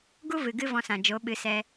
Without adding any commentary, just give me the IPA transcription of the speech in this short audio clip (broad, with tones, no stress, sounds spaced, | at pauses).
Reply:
ɡ u˦ v ɨ˨ ɡ ɨ˦ v ɔ̃˧ s ã˨ d͡ʒ o˨˦ ɓ ɨ˨˦ s ɛ˧